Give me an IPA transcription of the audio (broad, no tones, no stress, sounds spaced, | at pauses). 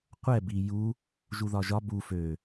qʷ ɛ b i j u | ʒ u ð ɒ ʒ ɒ b u f ø